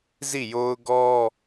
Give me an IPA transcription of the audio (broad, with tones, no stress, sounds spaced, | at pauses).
z i˦˨ j o˦ ʊ̯ ɡ ɔ˦